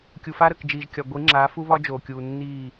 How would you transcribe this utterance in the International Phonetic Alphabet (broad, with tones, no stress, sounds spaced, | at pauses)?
kʲ u˨ f a˦ ɾ ə˨ k d͡ʒ iː˨ ʒ kʲ ɒ˨ ɡʷ i˨˦ ŋ͡ǁ aː˨˦ f u˦ β ɒ˦ d͡ʒ oː˨ kʲ uː˨ nː iː˦˨